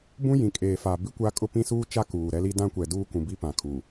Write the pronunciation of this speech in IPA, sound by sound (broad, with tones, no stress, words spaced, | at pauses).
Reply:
bũ˦jĩ˨ kʼeː˨fa˨ bi˦kʷa˦kʼʊ˦ pĩ˦suː˦t͡ʃa˦ kuː˨ɾɛ˦li˦ dã˦kʷɛ˨ duː˦kũ˨bi˦ pã˨kʰu˨